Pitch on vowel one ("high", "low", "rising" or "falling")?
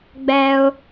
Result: high